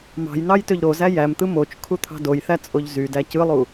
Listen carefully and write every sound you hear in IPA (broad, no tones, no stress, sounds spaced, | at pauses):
m ɑ̤ j n ɑ j t ø ʎ ɾ o z æ j æ m t̪ ɯ m o t͡ʃ kʰ u t̪ʰ ɑ̤ d o j θ æ t͡sʼ o ʎ z y d æ c ɯ lˠ u